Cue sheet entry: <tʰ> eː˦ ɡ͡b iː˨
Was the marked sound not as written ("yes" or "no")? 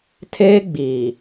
no